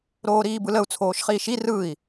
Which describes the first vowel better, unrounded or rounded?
rounded